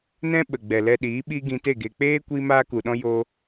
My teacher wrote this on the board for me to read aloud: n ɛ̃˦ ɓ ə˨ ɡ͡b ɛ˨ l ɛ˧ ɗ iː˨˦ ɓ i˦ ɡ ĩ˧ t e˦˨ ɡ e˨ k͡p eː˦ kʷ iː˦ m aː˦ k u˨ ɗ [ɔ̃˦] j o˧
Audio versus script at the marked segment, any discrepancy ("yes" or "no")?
no